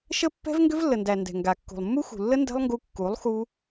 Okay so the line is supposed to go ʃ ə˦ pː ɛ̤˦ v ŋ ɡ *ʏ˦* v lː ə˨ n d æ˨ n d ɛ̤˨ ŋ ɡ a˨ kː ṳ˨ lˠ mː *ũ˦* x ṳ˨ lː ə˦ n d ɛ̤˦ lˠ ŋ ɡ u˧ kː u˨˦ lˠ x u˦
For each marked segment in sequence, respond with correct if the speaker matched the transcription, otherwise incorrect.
correct, incorrect: u˦

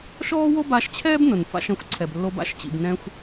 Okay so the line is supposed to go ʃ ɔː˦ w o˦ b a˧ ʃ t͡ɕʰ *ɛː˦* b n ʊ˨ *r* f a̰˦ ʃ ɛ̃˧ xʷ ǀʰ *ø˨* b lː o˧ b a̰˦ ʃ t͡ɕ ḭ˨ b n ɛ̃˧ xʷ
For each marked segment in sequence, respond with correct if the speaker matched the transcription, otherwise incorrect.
correct, incorrect: n, incorrect: ɛ˨

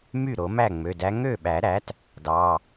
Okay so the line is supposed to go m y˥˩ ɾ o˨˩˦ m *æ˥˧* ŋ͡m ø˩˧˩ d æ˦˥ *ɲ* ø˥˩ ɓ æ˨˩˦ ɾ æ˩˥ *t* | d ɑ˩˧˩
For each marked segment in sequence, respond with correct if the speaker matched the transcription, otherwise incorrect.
incorrect: æ˥˩, incorrect: ŋ, correct

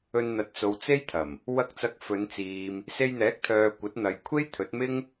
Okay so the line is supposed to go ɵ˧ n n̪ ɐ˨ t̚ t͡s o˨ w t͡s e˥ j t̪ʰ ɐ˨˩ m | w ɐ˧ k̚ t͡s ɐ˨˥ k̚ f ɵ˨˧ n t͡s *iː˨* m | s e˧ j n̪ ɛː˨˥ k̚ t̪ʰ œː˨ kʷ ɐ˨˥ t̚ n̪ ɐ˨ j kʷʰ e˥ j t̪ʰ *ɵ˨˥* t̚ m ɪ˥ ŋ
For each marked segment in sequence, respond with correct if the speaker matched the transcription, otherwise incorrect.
correct, correct

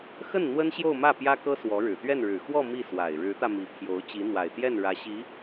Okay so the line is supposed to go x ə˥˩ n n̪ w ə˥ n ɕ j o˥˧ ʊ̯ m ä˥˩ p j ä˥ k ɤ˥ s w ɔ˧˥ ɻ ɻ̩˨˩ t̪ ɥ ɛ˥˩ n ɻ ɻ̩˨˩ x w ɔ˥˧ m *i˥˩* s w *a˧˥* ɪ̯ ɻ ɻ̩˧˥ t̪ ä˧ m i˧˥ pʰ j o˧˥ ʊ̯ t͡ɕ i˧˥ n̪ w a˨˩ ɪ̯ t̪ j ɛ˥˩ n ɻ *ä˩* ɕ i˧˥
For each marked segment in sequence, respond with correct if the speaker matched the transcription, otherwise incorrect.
correct, incorrect: a˨˩, incorrect: ä˧˥

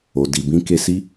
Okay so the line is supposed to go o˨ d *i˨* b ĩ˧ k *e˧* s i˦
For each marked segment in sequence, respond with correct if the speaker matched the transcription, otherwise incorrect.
correct, correct

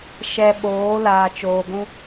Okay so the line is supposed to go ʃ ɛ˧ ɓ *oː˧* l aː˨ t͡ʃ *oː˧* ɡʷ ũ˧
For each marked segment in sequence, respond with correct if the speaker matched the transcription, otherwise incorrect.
incorrect: oː˨˦, incorrect: oː˨

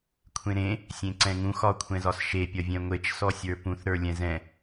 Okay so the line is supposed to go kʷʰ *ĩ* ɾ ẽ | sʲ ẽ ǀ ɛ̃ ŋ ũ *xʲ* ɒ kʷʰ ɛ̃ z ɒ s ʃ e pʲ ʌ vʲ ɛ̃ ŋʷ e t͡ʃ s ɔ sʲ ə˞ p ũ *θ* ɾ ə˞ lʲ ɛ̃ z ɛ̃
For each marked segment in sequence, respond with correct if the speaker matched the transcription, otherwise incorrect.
incorrect: ẽ, incorrect: x, correct

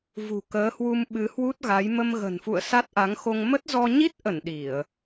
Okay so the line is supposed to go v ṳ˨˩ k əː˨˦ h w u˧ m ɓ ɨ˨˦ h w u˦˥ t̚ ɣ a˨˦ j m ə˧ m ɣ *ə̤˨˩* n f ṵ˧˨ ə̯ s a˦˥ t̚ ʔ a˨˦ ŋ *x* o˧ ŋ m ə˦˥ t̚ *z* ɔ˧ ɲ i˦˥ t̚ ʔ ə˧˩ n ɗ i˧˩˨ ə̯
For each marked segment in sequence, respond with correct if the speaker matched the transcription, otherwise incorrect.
correct, correct, correct

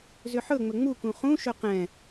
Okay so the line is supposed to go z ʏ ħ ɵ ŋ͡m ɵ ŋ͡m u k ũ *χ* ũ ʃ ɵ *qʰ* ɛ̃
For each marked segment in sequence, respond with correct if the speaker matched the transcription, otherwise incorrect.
correct, incorrect: q

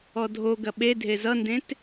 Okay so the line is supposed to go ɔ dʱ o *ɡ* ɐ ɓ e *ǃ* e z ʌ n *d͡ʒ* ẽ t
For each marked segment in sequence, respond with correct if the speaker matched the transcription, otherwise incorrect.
correct, incorrect: dʱ, incorrect: d

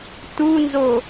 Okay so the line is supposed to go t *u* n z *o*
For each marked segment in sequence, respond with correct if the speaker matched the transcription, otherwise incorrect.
correct, correct

